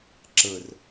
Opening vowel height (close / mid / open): mid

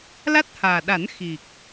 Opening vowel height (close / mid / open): open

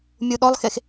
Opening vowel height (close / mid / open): close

